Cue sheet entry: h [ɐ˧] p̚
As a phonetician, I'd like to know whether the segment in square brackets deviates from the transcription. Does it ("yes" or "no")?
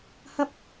yes